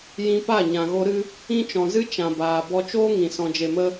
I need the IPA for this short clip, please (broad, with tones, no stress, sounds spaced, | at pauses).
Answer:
j ĩ˧ p a˦˨ ɲ ã˨ ɣ o˧ ɾ ɨ˧ | ĩ˦ t͡ʃ ɔ̃˨ z ɨ˦ t͡ʃ ã˨ b aː˨ b ɔ˧ t͡ʃ oː˦ ŋ ĩ˨ s ɔ̃˧ d͡ʒ e˧ m ə˦